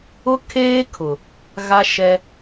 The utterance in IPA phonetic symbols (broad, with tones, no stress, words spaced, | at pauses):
ʊ˦ kʰeː˦kʰʊ˨ | ɣa˦ʃɛ˦